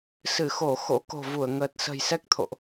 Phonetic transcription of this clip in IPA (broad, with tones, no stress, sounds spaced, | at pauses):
s ɨ˧˩ x o˧˩ x o̰˧˥ k o̤˨˩ v u˧˩ ə̯ ŋ əː˨˩ t̚ s ə̤˨˩ j s ɛ˦˥ k̚ t̪ʰ o̰˧˨ ʔ